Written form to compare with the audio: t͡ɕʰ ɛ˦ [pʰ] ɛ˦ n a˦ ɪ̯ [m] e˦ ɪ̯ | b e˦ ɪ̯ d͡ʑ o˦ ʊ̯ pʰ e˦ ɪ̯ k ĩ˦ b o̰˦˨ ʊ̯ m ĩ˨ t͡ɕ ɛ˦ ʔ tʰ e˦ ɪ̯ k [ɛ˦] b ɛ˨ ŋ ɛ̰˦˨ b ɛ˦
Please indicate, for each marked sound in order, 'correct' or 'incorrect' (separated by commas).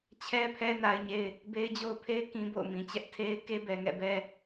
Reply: correct, incorrect, incorrect